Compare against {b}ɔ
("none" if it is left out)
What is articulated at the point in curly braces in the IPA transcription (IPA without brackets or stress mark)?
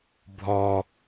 bʱ